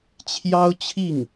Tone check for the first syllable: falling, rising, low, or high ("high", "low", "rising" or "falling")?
high